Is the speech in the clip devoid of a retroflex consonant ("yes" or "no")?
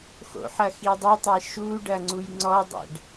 no